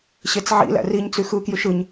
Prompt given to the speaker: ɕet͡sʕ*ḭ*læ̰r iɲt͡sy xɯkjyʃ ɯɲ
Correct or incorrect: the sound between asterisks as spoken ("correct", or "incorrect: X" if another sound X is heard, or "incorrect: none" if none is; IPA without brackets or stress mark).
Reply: correct